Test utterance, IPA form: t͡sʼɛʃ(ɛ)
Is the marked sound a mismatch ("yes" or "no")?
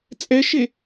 yes